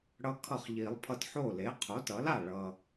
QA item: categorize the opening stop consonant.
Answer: aspirated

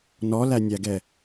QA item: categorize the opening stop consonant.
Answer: plain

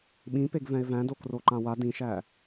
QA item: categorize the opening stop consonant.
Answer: implosive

